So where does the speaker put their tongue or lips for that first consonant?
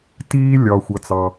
tongue tip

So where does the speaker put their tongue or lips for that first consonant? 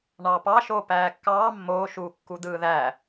retroflex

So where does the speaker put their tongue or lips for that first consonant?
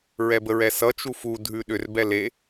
tongue tip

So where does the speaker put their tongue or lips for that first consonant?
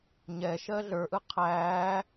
palate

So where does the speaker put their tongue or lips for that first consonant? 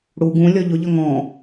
retroflex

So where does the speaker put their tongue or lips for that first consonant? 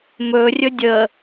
lips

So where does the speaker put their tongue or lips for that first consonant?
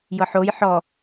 palate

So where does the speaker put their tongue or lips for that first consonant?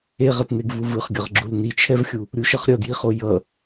uvula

